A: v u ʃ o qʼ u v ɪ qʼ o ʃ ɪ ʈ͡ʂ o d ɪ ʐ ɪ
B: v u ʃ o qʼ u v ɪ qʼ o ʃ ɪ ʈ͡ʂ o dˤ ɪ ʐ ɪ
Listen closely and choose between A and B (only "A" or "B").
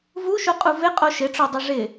B